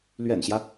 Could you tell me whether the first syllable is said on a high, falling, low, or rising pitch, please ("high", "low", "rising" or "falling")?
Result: low